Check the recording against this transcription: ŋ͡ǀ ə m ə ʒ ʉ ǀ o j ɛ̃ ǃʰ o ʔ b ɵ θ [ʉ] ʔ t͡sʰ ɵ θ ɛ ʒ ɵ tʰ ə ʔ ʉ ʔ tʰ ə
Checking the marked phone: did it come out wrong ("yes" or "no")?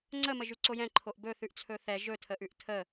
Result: no